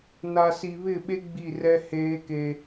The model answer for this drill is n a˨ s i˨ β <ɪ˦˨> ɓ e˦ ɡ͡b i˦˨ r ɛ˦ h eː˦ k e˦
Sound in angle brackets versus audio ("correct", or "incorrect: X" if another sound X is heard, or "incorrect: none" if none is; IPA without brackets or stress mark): correct